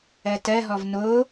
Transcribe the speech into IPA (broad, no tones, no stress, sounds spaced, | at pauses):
ɜ t ɜ ɦ ɔ v n o